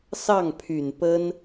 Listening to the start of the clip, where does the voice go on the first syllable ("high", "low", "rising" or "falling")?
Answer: falling